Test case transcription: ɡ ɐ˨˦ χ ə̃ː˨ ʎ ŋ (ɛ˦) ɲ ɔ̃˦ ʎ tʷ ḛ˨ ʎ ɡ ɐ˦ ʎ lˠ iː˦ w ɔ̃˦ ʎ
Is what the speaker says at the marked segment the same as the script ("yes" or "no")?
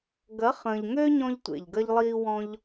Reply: no